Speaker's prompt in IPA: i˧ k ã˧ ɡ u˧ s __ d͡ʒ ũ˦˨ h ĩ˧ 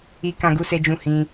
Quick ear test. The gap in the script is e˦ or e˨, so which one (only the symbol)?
e˦